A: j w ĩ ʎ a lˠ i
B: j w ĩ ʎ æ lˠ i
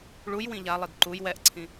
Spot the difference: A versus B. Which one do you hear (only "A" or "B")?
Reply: A